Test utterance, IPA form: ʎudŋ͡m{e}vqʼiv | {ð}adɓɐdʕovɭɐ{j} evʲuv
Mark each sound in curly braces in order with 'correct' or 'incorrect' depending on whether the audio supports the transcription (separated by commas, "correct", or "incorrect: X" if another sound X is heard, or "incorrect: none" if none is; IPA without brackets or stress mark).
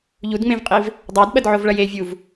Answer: incorrect: ẽ, incorrect: dˤ, correct